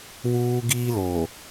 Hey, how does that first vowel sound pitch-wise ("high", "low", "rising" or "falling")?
high